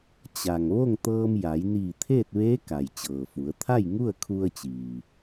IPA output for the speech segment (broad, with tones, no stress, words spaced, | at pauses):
t͡ɕa˩ŋ ʋo˥˨ŋt̪ɤː˧mja˩˧j niː˧˩t̪ʰeː˥˨t̚ʋeː˧˥ ka˩jt͡ɕɤː˩fu˩˧ə̯ t̪ʰa˥˨jŋu˥˨ə̯kʰu˧ə̯t͡ɕiː˩